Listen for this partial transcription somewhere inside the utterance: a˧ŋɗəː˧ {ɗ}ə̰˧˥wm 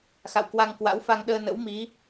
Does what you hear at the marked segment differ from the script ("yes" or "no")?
yes